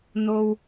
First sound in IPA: n̪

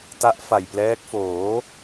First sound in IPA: t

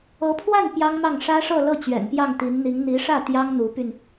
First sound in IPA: ɤ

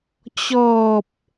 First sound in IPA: t͡ɕ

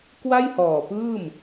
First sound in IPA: k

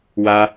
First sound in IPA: w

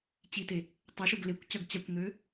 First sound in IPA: t͡ɕ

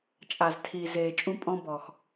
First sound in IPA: t͡ʃʼ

